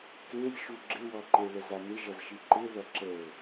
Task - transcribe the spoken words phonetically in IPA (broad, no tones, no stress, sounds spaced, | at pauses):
k e lʲ ʃ u ɡ͡ǁ ɪ w ɔ ǃ e ɭ ə z a n ɪ ʒ ʌ z ʃ i ǃ ɪ ð ʌ ǁ ə ʊ̯